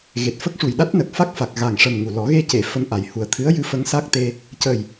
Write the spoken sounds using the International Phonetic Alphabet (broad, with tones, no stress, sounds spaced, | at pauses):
ɣ e˨˩ t̚ f ə˦˥ k̚ ʂ u˨˩ j ɗ a˦˥ t̚ n ə˨˩ k̚ f a˦˥ k̚ f a˨˩ k̚ ɣ a˨˩ ŋ ʂ ə˨˩ m ŋ u˨˩ l ɔ˨˩˦ ɣ e˧ c e˨˩˨ f ə˧ m ʔ a˨˩ j h u˨˩ ə̯ t̪ʰ ɨ˧˥ ə̯ j ɨ˧ f ə˧˥ ŋ s a˦˥ k̚ t̪ e˧ | c ə˨˩ j